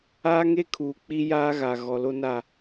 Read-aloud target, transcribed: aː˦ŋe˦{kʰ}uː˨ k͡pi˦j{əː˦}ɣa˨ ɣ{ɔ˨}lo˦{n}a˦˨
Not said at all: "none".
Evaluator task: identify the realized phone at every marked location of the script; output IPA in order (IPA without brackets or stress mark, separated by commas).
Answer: kʰ, aː˦, ɔ˨, n